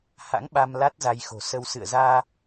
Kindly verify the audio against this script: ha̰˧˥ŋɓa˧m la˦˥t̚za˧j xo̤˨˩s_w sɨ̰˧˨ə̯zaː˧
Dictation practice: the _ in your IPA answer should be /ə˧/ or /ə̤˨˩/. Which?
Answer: ə˧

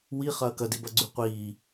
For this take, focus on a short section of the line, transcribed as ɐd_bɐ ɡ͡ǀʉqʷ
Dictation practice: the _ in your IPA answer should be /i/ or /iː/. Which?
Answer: i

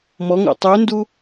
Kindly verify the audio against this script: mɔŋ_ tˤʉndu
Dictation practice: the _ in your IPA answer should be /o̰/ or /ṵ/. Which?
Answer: o̰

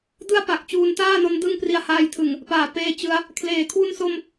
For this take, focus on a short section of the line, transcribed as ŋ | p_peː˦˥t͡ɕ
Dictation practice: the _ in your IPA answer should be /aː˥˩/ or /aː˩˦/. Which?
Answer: aː˩˦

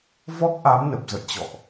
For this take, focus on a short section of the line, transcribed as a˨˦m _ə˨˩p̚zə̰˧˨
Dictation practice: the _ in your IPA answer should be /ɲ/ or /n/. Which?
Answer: n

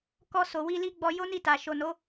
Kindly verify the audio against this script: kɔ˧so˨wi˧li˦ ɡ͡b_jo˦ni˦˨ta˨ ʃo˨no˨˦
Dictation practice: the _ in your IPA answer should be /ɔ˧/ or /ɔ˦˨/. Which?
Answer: ɔ˧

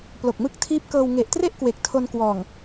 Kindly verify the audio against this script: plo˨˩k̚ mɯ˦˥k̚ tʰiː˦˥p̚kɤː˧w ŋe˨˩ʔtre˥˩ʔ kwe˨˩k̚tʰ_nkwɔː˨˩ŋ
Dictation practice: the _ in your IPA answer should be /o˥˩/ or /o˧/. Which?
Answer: o˧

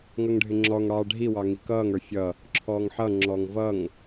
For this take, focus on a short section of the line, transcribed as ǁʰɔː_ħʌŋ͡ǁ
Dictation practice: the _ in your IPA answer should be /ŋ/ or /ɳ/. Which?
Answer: ŋ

